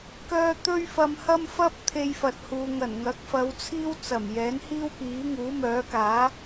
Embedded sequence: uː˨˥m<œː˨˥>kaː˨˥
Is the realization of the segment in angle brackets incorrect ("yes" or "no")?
no